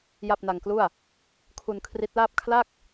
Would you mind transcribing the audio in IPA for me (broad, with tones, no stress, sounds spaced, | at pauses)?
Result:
j a˥˩ p̚ n a˧ ŋ k l u˥˩ a̯ | kʰ u˧ n kʰ r i˦˥ t̚ l aː˥˩ p̚ kʰ l a˥˩ k̚